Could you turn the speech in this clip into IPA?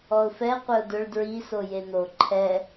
ɔʊ̯fɛ qʷɪʊ̯dʊɭ dɹi sojen̪o ǃʰɛ

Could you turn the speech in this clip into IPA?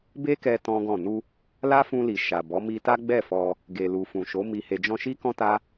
be˦kɛ˧ tɔ̃˦ɡɔ̃˦˨ nu˧ | la˦fũ˧li˨ ʃa˨bɔ˨˦ mi˧ta˦ ɡ͡bɛ˦˨fɔ˧ | ɡe˨lu˨fũ˨ʃo˨˦ mi˧he˧d͡ʒɔ̃˦ ʃi˦kɔ̃˦ta˦

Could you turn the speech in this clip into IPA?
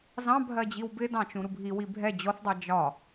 zɑ̃bʱɜ d͡ʑiwbɪdɑ̃t͡ʃũ ɾubʱiwi bʱɛ d͡ʑɔθdˤɛ d͡ʒɒ

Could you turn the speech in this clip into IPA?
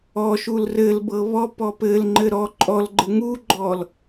ɔʃul rɘlbɤ βɔpɔ pɘlŋ͡ǃɘ ɾɔ ǃʼɔlɡ͡ǃɘ ŋuɡ͡ǃɔl

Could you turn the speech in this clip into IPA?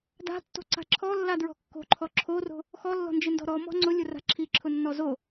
da̤tːo̤ǀa̤ ǁʰɔlːadɹɔ̤ kːo̤ǃʰɔ ǁʰoro̤ | xɔlːɔ̤nd͡ʒɪndɔ̤ ɾɔmɔ̤ ŋ͡ǀʊlʲʊra̤ ǁʰiǁʰʊnːɔ zo

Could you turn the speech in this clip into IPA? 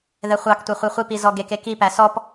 ðɛχʷɑktʷɛ χʷiχʷipi zɔɡeke kipæ sɔp

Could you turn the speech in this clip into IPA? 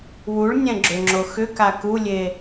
wuɭnʲɛ̃ ɡ͡ǁʏŋ͡ǁo xʏka kulʲe

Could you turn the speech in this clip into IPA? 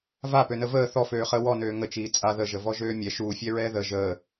vapønə vəː θɔføːχəː wɔnøː ŋət͡ʃiː t͡sʼa ðəʒəvɔʒøː mʲɛ ʃuːfʲɛɹɛː ðə ʒəː

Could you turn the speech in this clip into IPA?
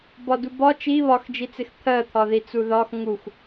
bɒdubɒ t͡ʃi βɒxd͡ʒit͡sɪx t̪ʰɜt̪ʰɒði t͡suðɒx ŋux

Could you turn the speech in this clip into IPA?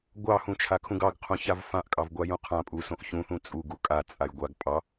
ɡʷɑhũt͡ʃʰakʰũɡ ɑɡqʰũçav fãʔkʼɑvɡʷajũ qʰãpʼusõʔ çũθũ t͡sʼuɡu kʼat͡sʼaj ɡʷaɡ pʼɑ

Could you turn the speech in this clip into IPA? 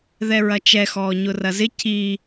ðɛɹɐt͡ʃɛ xɔːɲʊrɐzɪ ci

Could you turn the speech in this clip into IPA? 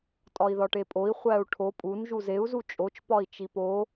tʼɒi̯ðɒʈepʼoi̯ χʷæu̯ʈʰo pʼun ʒuzeu̯ zut͡ʃʼot͡ʃ pɒi̯t͡ʃipo

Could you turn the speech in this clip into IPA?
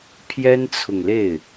pʰjɛ˥nt͡sʰʊ˨ŋle˥˩ɪ̯

